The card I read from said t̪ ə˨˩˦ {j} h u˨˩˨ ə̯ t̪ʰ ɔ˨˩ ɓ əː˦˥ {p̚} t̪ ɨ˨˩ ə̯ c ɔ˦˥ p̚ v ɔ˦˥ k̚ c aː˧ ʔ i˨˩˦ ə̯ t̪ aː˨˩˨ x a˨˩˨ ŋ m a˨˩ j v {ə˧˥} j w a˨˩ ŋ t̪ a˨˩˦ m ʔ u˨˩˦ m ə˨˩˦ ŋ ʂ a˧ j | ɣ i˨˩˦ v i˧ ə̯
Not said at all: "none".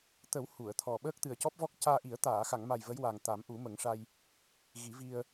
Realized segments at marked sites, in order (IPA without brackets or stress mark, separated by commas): w, k̚, ə˧˥